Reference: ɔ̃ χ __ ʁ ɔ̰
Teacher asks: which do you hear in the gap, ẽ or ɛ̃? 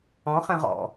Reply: ɛ̃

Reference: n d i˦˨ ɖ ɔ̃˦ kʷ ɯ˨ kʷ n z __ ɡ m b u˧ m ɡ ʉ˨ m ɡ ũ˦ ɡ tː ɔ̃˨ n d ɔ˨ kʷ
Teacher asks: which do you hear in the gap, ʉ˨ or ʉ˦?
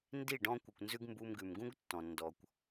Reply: ʉ˦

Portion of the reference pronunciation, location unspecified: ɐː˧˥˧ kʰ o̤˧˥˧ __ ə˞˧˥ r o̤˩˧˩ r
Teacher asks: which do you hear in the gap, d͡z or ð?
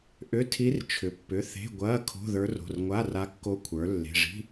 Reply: ð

